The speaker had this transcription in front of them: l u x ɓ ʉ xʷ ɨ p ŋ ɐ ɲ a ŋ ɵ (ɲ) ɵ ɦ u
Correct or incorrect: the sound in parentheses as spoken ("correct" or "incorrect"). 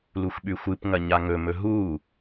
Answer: incorrect